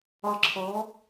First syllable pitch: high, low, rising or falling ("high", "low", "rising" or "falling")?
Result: falling